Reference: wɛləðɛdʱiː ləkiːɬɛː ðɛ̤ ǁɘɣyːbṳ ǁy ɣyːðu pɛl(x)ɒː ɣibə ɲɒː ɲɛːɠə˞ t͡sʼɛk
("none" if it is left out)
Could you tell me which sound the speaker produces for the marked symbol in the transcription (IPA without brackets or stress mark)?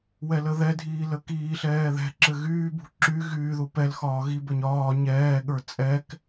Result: x